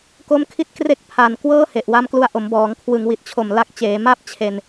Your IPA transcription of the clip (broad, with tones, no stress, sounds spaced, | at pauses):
k o˦˥ m kʰ i˦˥ t̚ k r e˦˥ k̚ pʰ a˨˩ n k w ɤː˥˩ h e˨˩ ʔ w a˧ m k l u˧ a̯ ʔ o˩˦ m b ɔː˩˦ ŋ kʰ w ɯ˩˦ ŋ w i˨˩ t̚ t͡ɕʰ o˨˩ m l a˦˥ k̚ t͡ɕ eː˩˦ m a˥˩ p̚ t͡ɕʰ e˧ n